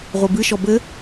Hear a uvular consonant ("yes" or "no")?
yes